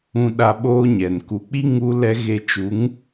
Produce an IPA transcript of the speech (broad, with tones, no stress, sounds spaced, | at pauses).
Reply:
ũ˦ ɗ a˦ ɓ oː˦ ɲ ɛ˨ n k u˨ k͡p i˦ ŋ u˦ l ɛ˦ ɣ e˦ t͡ʃ u˨˦ ŋ